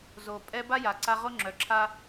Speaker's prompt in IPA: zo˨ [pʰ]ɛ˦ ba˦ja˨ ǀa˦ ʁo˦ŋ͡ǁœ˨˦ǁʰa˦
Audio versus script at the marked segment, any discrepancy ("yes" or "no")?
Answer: yes